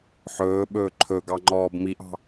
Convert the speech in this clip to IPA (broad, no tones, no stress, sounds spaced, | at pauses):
ħ ɵː ɓ ɵː ǃʰ ɵ ɡ ɑ ŋ͡ǃ ɔː b m i ʔ ɑ̤